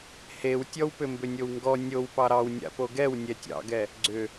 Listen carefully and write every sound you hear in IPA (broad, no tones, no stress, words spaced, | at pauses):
hewtʲɔwpʏ mbʏnʲowŋɡɔ nʲow pɑɾɑw nʲa̰poɡɛw nʲɛtʲɑ̰ɡɛ | ɡ͡ǀʏ